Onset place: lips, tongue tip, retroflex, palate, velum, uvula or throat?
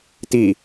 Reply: tongue tip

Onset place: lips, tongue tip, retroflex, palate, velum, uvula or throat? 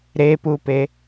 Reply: tongue tip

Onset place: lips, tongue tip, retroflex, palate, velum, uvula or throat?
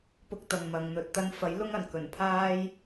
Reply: lips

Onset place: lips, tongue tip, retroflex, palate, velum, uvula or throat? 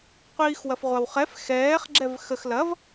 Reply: uvula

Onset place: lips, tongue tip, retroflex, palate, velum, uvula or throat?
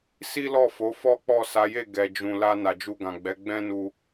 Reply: tongue tip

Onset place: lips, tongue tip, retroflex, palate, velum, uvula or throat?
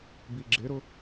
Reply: lips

